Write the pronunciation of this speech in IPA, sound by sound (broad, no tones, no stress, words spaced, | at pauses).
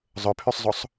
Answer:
zˤɵpʰysˤzˤosˤ